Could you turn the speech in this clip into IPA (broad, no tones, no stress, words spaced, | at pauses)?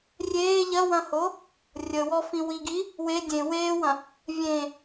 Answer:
rʲeː ʎɐwɐ̃ho | rʲəwɔfĩ wiɡi | we dʲẽ weːwɐ̃ | vʲẽ